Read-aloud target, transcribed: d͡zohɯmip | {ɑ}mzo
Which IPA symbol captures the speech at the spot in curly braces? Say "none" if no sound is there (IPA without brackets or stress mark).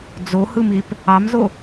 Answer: ɑ